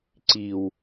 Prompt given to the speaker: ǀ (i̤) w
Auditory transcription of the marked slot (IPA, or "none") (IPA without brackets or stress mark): i